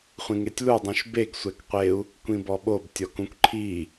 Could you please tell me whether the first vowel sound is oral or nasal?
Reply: nasal